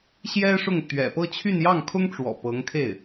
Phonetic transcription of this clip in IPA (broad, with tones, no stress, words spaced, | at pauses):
ɕjɛ˥ʂʊ˥˩ŋ t̪ɥɛ̰˨˩pɤ˥˧t͡ɕʰy˥˧n jɑ˥˩ŋkʰʊ˥ŋʈ͡ʂwɔ̰˨˩ pɤ˧˥ŋkʰe˥˩ɪ̯